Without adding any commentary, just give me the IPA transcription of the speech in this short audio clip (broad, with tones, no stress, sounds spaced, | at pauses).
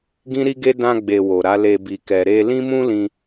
ɡ ĩ˦ ɾ i˦ ɡ e˦ d ã˧ ɡ͡b e˨ w o˨ ɾ a˨˦ l e˧ b i˨ k ɛ˨ ɾ e˧ l ĩ˦ m ũ˦ l ĩ˧